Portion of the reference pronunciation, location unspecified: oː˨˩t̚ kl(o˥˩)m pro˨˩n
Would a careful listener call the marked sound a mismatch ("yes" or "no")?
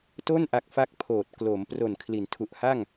yes